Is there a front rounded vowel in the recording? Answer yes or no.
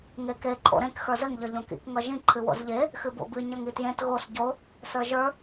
no